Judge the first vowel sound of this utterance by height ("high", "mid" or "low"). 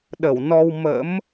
mid